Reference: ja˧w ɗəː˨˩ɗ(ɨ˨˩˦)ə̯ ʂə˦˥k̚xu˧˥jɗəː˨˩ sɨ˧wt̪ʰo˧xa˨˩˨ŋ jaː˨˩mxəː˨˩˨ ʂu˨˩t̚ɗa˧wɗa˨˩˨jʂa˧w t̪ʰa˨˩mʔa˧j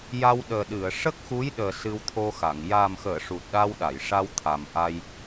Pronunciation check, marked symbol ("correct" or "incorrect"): incorrect